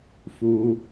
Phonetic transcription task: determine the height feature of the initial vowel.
high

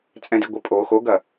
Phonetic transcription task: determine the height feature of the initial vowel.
mid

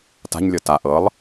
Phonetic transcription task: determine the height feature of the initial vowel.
low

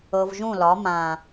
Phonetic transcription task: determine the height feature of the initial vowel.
mid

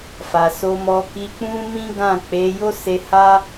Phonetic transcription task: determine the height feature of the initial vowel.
low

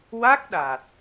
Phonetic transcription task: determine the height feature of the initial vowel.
low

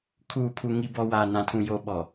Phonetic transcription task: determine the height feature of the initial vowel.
high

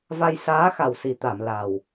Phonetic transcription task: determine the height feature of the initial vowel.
low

